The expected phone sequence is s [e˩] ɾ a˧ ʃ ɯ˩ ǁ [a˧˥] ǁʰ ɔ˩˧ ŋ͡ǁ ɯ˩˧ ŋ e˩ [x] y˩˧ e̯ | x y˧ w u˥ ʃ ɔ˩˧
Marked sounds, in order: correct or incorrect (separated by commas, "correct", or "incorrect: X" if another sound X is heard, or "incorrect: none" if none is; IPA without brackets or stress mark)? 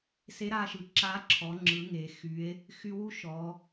incorrect: e˧˥, correct, correct